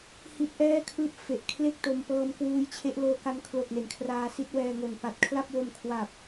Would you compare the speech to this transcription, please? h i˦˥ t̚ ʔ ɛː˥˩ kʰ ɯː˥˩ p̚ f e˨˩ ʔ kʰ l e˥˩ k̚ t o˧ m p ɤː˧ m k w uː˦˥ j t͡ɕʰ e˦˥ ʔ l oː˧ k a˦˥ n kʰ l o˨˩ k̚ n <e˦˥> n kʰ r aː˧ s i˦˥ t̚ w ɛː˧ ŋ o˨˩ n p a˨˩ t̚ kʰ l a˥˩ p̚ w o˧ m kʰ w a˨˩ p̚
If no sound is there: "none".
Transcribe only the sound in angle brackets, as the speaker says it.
e˩˦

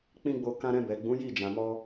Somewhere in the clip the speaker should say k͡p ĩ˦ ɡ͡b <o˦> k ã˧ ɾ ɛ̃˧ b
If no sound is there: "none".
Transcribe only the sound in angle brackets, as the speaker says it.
o˧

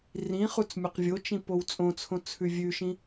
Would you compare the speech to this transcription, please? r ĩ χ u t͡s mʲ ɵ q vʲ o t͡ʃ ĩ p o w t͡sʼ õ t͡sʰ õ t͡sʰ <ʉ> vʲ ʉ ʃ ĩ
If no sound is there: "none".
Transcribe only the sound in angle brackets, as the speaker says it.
ʉ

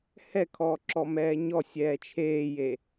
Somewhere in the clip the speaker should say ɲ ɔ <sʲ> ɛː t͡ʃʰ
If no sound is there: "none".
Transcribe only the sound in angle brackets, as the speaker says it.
sʲ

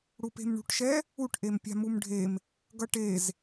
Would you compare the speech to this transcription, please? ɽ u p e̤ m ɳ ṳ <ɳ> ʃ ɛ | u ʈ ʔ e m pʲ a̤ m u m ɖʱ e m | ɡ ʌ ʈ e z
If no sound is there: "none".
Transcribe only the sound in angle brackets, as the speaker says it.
ʈ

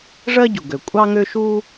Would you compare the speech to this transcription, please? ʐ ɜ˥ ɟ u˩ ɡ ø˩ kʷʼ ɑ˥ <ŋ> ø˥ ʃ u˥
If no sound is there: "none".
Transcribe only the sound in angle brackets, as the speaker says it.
ŋ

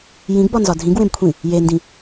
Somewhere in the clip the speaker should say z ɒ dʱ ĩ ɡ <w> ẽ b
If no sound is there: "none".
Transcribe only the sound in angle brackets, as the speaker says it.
w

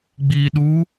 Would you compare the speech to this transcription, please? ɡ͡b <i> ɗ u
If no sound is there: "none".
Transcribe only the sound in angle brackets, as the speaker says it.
i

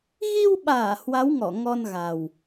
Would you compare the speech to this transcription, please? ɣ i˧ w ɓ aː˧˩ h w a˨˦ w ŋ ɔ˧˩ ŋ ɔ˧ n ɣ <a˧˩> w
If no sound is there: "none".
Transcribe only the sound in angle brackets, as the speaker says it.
a˨˩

